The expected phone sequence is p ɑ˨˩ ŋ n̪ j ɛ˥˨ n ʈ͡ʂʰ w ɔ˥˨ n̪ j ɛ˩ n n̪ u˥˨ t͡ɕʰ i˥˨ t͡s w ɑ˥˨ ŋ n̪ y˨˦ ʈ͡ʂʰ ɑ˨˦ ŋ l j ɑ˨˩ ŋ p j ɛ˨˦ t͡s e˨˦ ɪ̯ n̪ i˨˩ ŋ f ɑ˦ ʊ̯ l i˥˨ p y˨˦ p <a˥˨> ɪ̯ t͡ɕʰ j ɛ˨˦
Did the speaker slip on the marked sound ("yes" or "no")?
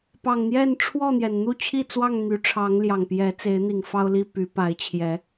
yes